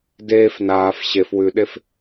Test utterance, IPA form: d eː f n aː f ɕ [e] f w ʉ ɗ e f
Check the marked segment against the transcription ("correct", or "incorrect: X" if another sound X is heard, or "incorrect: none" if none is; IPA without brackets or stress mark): correct